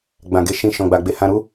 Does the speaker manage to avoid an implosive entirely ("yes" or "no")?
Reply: yes